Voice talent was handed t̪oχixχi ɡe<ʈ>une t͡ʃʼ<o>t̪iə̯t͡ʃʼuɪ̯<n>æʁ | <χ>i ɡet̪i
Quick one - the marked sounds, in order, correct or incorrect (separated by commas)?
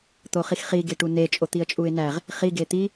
correct, correct, correct, correct